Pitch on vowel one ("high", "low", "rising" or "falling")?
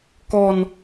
low